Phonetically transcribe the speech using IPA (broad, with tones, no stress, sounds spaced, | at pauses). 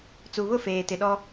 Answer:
t͡s u˨ β ʊ˦˨ f eː˨ t ɪ˨ ɗ ɔ˦